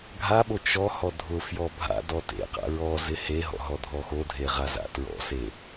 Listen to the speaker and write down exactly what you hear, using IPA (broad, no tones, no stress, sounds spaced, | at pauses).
ɡʱ a ɓ o t͡ʃ ɔ h ɔ dʱ ʊ f j ɔ bʱ a̰ d ɔ t ḛ q a̰ ɹ ɔ z ɪ h e ɦ ɔ̰ ɦ ɔ dʱ ɔ x o dʱ e ʁ a z a̰ t ɹ ɔ̰ s e